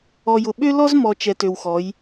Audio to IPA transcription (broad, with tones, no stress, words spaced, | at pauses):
ɔ˨jʊ˨ ɓø˦lɔ˦zmɔ˨ t͡ʃɛ˨tø˨wxɔ˨˦j